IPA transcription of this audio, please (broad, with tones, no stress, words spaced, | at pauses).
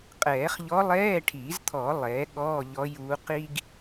qʼɛː˨˩˦χ ʎɔ˧˥ lˠɛː˧˥˧ʈʰiː˨˩˦zt̪ʰɔ˨˩˦ lˠɛː˩˥ɠɔː˧˥˧ʎɔ˧˥juː˧˥ qi˥ɡ